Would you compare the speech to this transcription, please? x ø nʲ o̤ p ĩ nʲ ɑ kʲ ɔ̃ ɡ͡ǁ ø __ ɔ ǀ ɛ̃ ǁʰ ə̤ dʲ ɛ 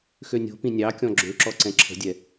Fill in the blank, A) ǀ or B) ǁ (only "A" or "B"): B